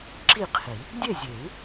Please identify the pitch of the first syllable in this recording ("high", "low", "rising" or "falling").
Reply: falling